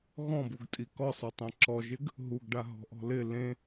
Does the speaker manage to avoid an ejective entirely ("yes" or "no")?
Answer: no